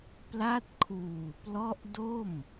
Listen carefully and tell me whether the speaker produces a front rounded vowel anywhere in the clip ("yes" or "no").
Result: no